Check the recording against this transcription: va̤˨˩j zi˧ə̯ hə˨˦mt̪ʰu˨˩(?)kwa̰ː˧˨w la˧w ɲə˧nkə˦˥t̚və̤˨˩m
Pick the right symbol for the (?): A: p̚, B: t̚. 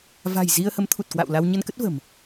B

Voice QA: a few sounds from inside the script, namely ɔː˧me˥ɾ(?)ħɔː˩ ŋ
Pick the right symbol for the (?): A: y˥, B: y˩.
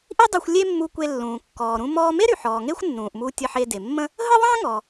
B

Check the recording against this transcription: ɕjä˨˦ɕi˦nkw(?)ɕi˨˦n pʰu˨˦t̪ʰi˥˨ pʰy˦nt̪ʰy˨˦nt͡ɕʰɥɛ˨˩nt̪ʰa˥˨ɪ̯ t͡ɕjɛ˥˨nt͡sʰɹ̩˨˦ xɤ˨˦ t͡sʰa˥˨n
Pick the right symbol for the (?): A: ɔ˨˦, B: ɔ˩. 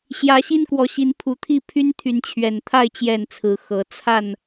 A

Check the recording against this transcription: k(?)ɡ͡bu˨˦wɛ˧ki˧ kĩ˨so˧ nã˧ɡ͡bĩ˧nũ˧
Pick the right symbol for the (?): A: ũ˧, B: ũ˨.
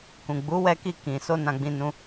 B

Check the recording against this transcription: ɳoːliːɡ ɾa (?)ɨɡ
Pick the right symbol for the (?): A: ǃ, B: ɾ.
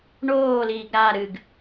B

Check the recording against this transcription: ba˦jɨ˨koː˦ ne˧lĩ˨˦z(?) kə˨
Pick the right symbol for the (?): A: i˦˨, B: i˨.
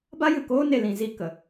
A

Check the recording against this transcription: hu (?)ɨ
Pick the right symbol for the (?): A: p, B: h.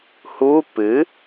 A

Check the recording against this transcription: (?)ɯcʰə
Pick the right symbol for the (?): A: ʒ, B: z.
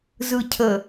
B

